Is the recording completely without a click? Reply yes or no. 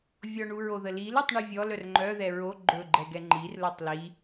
no